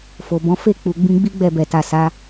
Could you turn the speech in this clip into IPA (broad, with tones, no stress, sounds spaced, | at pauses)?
f o˨ b ɔ̃˨˦ f e˦˨ k͡p u˨ ɡ͡b ĩ˧ ɡ͡b i˦ ɡ͡b ɛ˦˨ b ɛ˨ t a˨ s a˨˦